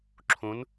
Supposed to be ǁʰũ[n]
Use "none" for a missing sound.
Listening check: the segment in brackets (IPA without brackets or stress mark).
n